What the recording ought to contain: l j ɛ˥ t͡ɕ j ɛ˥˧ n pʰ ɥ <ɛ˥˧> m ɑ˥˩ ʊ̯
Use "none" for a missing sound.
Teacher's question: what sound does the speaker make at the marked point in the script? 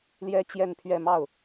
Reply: ɛ˥˧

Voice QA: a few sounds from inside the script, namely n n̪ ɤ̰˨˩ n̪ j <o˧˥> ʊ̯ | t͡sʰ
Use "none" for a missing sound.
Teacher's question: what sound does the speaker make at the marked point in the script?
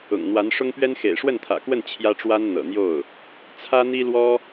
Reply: o˥˩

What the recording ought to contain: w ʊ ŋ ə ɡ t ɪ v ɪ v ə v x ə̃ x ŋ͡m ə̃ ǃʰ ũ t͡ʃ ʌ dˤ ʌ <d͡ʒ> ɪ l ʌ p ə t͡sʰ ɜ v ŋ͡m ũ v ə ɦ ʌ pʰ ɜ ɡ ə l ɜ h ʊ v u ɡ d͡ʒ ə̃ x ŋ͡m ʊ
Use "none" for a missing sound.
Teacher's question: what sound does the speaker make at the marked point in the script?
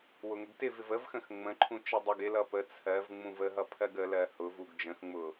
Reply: ɡ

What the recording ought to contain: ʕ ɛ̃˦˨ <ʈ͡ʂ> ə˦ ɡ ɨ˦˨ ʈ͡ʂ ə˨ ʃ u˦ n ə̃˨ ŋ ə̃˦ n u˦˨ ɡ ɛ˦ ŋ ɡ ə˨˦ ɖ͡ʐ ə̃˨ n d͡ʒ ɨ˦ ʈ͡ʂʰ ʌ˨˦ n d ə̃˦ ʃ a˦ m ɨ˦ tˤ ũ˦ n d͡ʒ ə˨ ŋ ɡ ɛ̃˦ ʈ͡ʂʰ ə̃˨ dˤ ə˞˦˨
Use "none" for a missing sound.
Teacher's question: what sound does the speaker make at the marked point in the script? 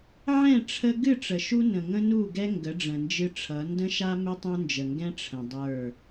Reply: ʈ͡ʂʰ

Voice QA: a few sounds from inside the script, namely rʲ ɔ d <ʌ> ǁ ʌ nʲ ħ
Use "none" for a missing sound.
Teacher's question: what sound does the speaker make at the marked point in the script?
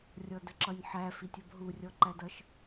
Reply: ə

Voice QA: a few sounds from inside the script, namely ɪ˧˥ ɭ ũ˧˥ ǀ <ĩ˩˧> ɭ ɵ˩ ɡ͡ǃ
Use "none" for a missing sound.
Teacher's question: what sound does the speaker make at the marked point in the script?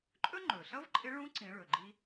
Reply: ĩ˩˧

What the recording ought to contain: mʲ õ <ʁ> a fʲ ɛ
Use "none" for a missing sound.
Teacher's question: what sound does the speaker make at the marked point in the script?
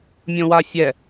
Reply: w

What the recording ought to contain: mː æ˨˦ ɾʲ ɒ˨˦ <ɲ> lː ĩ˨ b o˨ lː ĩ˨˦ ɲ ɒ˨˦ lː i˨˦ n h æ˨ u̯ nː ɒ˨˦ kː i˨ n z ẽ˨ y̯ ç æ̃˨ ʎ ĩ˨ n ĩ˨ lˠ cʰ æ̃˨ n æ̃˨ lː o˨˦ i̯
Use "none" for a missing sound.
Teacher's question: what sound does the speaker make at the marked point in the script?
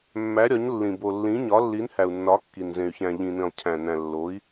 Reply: ɲ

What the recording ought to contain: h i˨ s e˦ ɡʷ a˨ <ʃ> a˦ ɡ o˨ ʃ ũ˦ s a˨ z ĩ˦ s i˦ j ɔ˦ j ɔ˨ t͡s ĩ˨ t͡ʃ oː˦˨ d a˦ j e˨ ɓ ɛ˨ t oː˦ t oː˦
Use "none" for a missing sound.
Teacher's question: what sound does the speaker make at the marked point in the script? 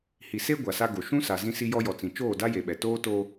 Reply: s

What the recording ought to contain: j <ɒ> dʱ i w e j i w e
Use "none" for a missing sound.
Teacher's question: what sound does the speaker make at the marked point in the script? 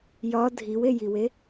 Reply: ɒ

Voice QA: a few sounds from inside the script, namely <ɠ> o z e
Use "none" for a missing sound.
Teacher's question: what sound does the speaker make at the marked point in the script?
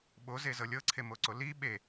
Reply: ɓ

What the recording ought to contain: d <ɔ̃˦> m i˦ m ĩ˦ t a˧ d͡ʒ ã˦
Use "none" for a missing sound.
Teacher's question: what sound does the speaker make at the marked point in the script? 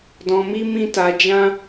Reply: ɔ̃˧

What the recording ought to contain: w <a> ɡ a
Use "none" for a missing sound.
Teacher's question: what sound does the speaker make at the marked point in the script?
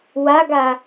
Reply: a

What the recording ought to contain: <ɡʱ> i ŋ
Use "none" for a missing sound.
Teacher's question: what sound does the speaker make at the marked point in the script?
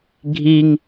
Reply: ɡʱ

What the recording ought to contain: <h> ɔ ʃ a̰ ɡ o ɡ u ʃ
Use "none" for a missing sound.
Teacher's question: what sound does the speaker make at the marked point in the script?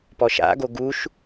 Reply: p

